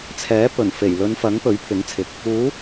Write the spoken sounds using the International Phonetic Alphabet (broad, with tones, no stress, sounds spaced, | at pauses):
t͡sʰ ɛː˨˥ p ɵ˨˩ n f e˨˩ j l ɵ˨˧ n f ɐ˨˥ ŋ p ɵ˨˥ ɥ pʰ ɪ˨˥ ŋ t͡sʰ ɪ˨˥ k̚ | uː˨˥